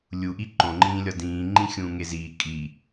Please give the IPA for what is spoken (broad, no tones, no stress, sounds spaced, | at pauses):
lʲ u ʔ i ǃ õ ŋ͡ǃ ĩː lʲ ɒ d ĩː ŋ͡ǃ ĩ xʲ ũː ŋ e z iː kʼ i